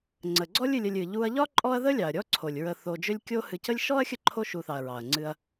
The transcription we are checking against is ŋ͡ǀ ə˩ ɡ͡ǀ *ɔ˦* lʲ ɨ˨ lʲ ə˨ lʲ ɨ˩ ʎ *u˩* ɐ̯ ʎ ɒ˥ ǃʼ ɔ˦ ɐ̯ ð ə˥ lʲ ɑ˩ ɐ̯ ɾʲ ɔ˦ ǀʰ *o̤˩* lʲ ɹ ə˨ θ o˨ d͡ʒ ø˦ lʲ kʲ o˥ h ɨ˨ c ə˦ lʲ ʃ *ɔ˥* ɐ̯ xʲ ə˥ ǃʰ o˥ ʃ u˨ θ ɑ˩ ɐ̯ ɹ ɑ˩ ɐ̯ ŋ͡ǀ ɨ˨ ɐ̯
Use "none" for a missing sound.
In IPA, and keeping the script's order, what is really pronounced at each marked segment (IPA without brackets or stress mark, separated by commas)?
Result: ɔ˥, u˦, o˩, ɔ˥